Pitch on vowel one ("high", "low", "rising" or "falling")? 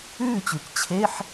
falling